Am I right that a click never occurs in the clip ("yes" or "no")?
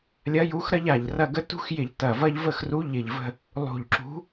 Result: no